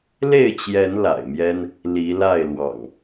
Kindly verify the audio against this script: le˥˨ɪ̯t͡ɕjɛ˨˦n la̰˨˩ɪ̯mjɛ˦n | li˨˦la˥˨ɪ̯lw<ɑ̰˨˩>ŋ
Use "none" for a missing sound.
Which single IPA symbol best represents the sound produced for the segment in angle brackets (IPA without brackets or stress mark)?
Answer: ɑ̰˨˩